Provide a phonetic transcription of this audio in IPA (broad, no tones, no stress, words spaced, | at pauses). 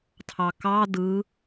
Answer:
tʰɑkɑ dɯ